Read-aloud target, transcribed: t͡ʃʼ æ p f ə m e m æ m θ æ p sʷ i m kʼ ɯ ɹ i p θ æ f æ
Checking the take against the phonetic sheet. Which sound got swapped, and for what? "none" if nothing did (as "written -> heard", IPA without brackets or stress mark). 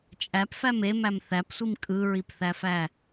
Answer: ə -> æ